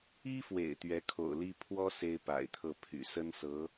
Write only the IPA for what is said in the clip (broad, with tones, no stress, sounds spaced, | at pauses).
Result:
i˥ f w ḛ˨˩ ɪ̯ t̪ ɥ ɛ˧˥ kʰ o̰˨˩ ʊ̯ l i˥ pʰ w ɔ˥ s e˥ ɪ̯ p a̰˨˩ ɪ̯ t̪ʰ ɤ˥˩ pʰ y̰˨˩ s ə˥ n s ɤ˧˥